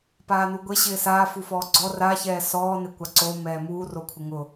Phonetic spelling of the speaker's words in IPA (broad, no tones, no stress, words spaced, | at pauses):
paːnuɡʷe ɕɪːsaːfufɔː ɡ͡ǀɔ raçɛː sɔːnekʷa ǀo mɛːmuː rokʷʰɪŋʊ